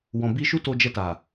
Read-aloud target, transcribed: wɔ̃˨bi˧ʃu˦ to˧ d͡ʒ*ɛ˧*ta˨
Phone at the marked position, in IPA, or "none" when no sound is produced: ɛ˧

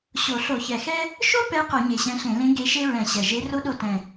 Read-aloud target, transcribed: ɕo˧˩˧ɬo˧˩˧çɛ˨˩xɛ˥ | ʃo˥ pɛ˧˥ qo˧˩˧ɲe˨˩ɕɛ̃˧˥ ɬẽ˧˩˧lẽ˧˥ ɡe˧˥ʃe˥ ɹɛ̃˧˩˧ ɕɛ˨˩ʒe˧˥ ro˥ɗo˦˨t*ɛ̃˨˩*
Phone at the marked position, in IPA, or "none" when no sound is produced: ɛ̃˨˩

